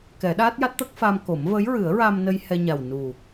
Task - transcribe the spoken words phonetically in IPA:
kɛ˨˩˦ɗa˦˥t̚ ja˦˥t̚t̪ə˦˥k̚fa˧mko˨˩˦m və˧˥jɹɨ˨˩˦ə̯ ɹa˧mnə˧j hɛ˧ɲa˨˩wnu˨˩

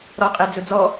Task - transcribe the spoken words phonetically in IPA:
ɾɔqʼed͡zɵd͡zɔ

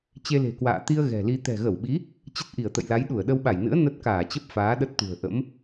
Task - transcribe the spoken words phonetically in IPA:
t͡ɕe˧le̤˨˩kwa̰ː˧˨ t̪i˧ə̯ ɣɛ̤˨˩li˧ t̪ɛ̤˨˩ɣə˧˩wɓi˨˦ | t͡ɕə˦˥t̚ʔi˧˩ə̯t̪ə̰˧˨jla˨˦j ɗu˧˩ə̯ɗə˧wɓa˧˩jnɨ̰˧˥ə̯ nə˦˥t̚kaː˧˩t͡ɕə˦˥p̚ faː˨˦ɗə˦˥t̚t̪ṳ˨˩ə̯ ʔə̰˧˥m

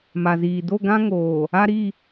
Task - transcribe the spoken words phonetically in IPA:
ma˨ziː˨ do˦˨ɡã˦ ŋoː˨ | a˦ɾi˦˨

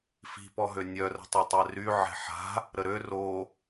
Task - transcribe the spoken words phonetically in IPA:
fi̤pɔɦø nʲœrə̤tˤotˤɛ ry ʕɛ̤ħa̤ | ɾəɾø ro

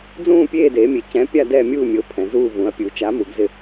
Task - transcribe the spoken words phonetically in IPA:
d͡zũː˦˨pʲeː˦˨deː˩˧mʲe˩˧ cɛ̃˨˥ pʲa˦˨dɛː˦˨mʲuː˦˨ mʲo˨˥pʰɛ̃˩˧zuː˦˨ vũ˩˧ɐ̯pʲu˩˧ t͡ʃa˨˥mu˩˧ɡzɪ˦˨

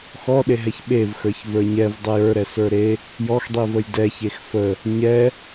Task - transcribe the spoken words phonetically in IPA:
xɔɗeɦɛç ɓevxə˞ç və˞ɲɛv dˤejə˞ɾɛ sə˞ɾe | jɔxdˤivəj dɛçex fə | ɲɛ

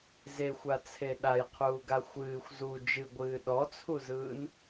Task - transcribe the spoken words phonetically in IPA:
zexʷat͡sʰe ɗajqʰuːɡa xʷɨːxʷ zu d͡ʒɨɡʷɨː ɗɔt͡sʰuzɯːn

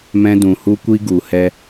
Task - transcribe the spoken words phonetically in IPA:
mɛ̃˦dũ˧hu˦kʷi˦ ɡu˧hɛ˦

